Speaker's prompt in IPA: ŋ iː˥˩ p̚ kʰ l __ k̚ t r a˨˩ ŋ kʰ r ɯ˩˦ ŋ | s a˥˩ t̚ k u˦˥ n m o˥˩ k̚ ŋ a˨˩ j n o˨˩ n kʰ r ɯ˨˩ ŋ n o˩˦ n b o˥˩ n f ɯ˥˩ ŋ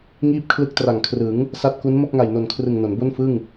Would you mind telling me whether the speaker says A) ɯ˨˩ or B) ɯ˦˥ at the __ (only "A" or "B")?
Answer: B